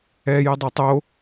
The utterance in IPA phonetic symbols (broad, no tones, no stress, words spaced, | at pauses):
ɛjɛdˤo tˤo